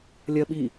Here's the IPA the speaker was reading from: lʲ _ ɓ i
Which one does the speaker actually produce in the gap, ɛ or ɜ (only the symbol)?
ɜ